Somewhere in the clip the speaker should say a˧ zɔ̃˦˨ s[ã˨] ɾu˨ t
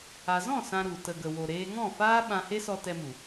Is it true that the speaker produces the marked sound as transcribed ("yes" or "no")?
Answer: no